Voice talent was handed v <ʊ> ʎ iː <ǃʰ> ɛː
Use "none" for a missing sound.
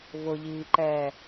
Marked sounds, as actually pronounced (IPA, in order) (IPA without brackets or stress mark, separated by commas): ʊ, ǃ